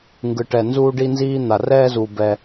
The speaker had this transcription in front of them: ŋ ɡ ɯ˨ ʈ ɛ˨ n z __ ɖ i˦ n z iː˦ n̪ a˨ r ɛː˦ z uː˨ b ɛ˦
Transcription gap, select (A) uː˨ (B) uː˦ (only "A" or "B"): B